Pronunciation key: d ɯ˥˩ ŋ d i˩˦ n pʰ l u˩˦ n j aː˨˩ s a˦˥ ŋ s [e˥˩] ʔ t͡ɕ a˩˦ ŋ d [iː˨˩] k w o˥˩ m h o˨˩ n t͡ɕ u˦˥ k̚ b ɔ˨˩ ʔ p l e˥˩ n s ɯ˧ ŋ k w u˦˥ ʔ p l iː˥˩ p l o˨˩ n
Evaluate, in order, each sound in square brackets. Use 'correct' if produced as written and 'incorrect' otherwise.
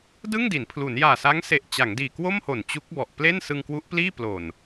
incorrect: e˨˩, correct

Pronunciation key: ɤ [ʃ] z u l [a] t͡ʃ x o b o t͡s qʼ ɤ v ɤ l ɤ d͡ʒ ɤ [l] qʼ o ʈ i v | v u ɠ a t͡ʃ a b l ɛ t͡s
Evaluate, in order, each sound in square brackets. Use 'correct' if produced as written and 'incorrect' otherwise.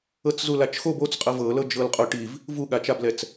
incorrect: t͡s, correct, correct

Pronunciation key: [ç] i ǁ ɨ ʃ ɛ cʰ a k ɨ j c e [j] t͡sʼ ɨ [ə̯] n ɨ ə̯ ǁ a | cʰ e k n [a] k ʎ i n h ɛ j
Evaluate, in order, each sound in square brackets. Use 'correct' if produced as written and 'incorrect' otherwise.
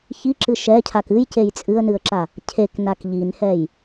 correct, correct, correct, correct

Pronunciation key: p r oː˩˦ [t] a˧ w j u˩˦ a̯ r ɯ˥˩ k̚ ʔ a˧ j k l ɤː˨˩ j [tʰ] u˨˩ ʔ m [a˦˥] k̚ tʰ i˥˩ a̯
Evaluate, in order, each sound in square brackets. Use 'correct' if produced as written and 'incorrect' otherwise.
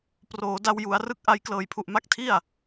incorrect: d, incorrect: pʰ, correct

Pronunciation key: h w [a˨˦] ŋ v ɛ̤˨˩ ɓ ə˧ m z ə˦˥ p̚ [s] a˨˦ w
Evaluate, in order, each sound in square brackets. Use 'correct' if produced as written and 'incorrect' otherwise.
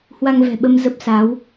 incorrect: a˧, correct

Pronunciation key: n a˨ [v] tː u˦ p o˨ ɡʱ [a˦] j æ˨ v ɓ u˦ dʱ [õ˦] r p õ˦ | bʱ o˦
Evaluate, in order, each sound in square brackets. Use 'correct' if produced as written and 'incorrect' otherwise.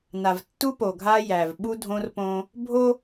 correct, correct, correct

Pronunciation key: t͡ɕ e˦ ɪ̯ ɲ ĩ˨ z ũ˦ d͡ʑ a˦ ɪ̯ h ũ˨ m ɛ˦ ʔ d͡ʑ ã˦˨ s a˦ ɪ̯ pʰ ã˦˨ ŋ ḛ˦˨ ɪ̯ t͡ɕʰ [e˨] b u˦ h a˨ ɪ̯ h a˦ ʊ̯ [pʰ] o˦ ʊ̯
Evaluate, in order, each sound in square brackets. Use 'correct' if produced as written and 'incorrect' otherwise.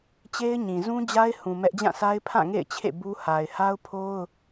incorrect: ḛ˦˨, correct

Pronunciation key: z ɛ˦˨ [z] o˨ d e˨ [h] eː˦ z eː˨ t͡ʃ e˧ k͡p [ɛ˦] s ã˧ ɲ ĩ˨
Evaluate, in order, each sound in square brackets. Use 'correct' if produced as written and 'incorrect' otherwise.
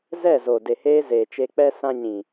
correct, correct, correct

